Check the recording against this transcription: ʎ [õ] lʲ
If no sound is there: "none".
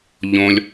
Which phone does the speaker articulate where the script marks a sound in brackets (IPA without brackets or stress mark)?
õ